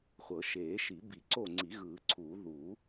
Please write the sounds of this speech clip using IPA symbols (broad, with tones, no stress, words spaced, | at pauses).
χʷɤ˨˩˦ʃeː˨˩˦ʃi˨˩˦ bi˨˩˦ǀo˦˨ŋ͡ǀi˨˩˦ ɣɯː˨˩˦ǀʰuː˨˩˦ ðuː˨˩˦